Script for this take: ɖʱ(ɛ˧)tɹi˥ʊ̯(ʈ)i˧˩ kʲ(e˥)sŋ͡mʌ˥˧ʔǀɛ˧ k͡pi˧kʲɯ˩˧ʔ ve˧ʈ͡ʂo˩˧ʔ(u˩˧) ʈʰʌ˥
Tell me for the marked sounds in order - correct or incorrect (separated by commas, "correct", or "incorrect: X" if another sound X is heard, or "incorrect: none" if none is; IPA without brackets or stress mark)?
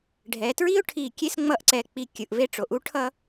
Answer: incorrect: ɛ˩˧, incorrect: ʈʰ, correct, incorrect: u˥